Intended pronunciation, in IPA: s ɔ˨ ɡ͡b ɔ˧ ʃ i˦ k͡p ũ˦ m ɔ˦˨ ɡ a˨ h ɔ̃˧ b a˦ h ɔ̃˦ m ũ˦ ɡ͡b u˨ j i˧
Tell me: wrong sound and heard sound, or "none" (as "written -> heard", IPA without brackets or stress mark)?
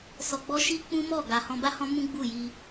u˨ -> u˦˨